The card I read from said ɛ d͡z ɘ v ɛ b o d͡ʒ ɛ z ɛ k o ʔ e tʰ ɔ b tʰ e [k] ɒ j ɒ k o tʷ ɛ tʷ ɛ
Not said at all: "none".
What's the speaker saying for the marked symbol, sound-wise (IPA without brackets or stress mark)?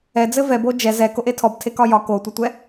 k